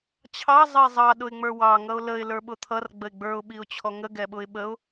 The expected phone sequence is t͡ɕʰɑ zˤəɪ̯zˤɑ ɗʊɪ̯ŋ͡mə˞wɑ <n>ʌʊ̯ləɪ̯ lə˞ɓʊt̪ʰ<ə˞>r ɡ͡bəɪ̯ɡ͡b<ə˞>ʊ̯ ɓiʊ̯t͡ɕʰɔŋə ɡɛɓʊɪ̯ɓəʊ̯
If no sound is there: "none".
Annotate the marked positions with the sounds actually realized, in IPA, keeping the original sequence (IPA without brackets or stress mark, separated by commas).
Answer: ŋ, ʌ, ə˞